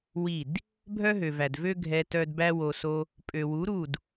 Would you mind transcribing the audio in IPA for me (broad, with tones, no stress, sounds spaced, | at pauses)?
w i˦˨ d | bʱ œ˦ ɦ ø˨ v æ˨ d v ø˦ ɡʱ ɛ˧ t œ˧ d b æ˧ w o˨ s o˧ | pʼ ø˨ w u˨˦ ɾ u˦˨ d